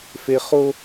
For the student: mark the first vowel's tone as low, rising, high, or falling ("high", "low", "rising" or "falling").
high